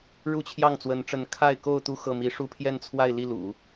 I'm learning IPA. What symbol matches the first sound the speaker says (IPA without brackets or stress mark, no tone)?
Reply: ɻ